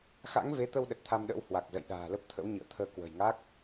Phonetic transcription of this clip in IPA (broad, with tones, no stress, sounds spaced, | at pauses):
x a̰˧˥ ŋ v e˨˦ t̪ ə˧ w ɗ ə˨˩ t̚ t̪ʰ a˧ m ɗ ə̰ː˧˥ w h w a˨˩ k̚ z ə̰˧˨ j ɗ a̤ː˨˩ l ə˦˥ p̚ t̪ʰ ə̰˧˥ w ɲ ɨ̰˧˨ ə̯ t̪ʰ əː˧ k w ə̤˨˩ j ŋ a˦˥ k̚